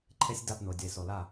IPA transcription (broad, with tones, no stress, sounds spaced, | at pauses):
ǃʰ e˦ sʲ d a˦˨ p n̪ ʊː˨ dʲ ʊ˨ e̯ s o˨ l a˦˨